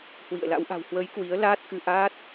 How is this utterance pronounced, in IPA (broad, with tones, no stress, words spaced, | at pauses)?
hwḭ˧˨ə̯la̰˧˥w ʔa̤˨˩whwə˨˦j kwi˨˦ə̯laː˦˥t̚ kɨ˧ʔaː˦˥t̚